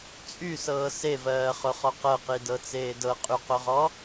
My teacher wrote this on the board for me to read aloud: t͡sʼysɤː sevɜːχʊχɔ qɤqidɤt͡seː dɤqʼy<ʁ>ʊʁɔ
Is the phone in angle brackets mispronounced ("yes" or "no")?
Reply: yes